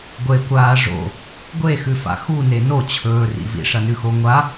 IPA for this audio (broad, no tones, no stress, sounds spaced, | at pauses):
ɡʷ e kʷ aː ʐ o̰ | ɡʷ e x ʉ f a̰ x u n e n o t͡ɕʰ ɵː r ḭ v ḭ ʂ ɐ n ʉ x o ŋʷ a